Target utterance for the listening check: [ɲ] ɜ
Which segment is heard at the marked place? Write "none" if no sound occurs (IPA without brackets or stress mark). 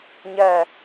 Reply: ɲ